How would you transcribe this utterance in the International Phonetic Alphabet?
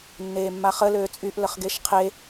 nː eː mː a χ ə l øː t͡sʼ y ʔ l ə χ ɡ e ʃ qʰ e

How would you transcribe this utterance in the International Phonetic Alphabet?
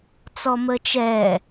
t͡s ɔ m ə t͡ʃ ɛ

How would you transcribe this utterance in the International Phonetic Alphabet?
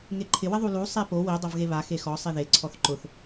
ŋ e ǃʰ ɪ w ɪ ðˤ u l u sˤ e p o w i dˤ o v ɣ e β a x e x ɔ sˤ i ð e ǀʰ ɔ θ ǃ ʊ θ

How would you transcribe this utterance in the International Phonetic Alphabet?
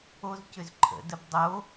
o z c ʏ z ǃʰ ə̰ d ə b dˤ o

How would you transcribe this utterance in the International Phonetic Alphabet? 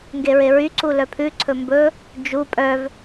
ŋ ɡ e ɹ e ɹ y ǀ u l œ pʰ ʉ ǀʰ ɵ m b ɵ | d͡ʒ u pʼ œ v

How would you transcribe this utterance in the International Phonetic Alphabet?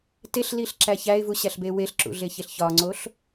t e ɬ l i ɬ ǁ æ ç æ ɪ̯ v u ɕ æ ɬ b e w e ɬ ǁ ṵ ɮ e ç e ɬ ç ɒ ŋ͡ǀ o ɬ

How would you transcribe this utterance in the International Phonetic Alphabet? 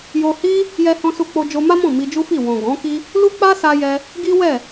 j o˧ h i˦ | j ɛ˧ h ɔ̃˧ s u˧ k͡p o˧ d͡ʒ o˧ m a˦ m ɔ̃˦˨ m i˧ d͡ʒ u˦ f i˦˨ w ɔ̃˨ ɡ ɔ̃˨˦ k i˦ | l u˦ k͡p a˦ s a˧ j ɛ˧ | ɡ i˦ w ɛ˦˨

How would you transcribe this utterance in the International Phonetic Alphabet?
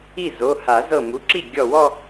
i˥˩ z o˩˧˩ h a˨˩˦ z ɤ˧˩ m u˩˧˩ ǁ i˥˩ ɡʲ ɔ˧˩ w ɔ˥˧

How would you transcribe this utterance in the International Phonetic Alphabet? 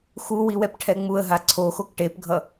x u w i w ɛ p ʈʰ ɛ ŋ͡m u ə̯ ɦ a ǀʰ o x o k ʈ e p ɡʱ ʌ

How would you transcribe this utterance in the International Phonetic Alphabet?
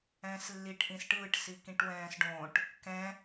ɛ̃ː s lː i ʈ ʔ ĩ s ʈ ɯː ʈ s i k ĩ ʈ w ɛ̃ː s ɖ õ ʈ | k ɛ̃

